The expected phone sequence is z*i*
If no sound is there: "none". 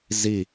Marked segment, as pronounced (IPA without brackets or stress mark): i